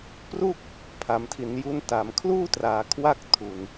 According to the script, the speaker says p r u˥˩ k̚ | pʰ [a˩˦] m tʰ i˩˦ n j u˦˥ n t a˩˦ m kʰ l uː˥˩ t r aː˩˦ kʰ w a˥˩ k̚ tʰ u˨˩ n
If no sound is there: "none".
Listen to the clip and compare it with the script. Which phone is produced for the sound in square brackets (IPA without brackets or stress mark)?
a˩˦